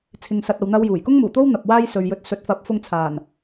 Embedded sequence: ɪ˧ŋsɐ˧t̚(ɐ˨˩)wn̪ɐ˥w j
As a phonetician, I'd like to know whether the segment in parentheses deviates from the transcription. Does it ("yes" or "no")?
yes